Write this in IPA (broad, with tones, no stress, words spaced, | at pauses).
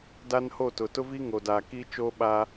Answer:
da˦nho˦˨tʊ˨ tʊ˦vi˦ŋo˨daː˨ ki˦t͡ʃoː˦ ɓa˦